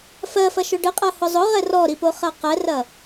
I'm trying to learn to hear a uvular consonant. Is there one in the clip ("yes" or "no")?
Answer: yes